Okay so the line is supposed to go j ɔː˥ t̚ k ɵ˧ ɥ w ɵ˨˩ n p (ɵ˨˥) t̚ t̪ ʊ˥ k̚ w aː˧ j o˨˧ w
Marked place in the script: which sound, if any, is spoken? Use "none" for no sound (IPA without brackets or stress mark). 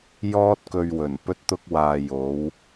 ɵ˥